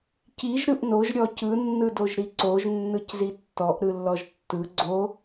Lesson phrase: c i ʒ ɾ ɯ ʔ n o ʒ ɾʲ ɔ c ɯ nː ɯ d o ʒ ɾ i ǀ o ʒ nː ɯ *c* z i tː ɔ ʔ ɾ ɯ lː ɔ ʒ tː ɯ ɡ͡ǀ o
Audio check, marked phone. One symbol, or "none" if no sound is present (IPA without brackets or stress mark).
c